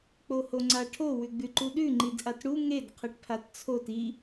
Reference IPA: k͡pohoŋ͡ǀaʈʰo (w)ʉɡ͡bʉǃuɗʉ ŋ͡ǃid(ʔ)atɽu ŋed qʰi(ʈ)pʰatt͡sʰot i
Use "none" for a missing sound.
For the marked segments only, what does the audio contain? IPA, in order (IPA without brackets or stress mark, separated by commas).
w, ʔ, ʈ